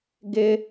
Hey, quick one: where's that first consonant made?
velum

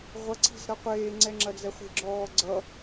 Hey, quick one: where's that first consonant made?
uvula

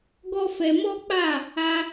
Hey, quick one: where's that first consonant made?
velum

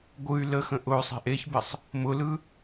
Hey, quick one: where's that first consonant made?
velum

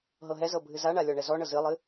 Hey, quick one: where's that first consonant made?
throat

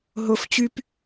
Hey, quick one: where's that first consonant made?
throat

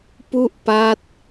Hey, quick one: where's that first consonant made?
lips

